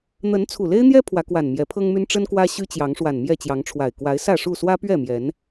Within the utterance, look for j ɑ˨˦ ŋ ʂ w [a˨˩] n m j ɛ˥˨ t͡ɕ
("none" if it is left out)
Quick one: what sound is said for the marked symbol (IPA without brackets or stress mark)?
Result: a˨˩